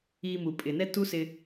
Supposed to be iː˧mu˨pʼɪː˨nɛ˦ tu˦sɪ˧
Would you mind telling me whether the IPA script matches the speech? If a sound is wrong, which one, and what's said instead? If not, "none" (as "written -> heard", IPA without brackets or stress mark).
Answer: none